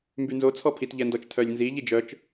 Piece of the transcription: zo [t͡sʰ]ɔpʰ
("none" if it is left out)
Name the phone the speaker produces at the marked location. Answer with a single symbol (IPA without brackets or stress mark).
t͡sʰ